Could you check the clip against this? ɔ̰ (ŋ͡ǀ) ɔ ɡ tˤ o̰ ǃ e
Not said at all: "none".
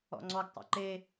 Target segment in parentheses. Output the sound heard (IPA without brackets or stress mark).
ŋ͡ǀ